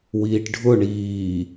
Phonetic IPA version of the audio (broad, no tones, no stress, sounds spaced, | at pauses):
w iː ʈ ɖʱ ʊ ɳ iː